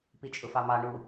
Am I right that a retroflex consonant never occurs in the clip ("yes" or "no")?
no